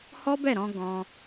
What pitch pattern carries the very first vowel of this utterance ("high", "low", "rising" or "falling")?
high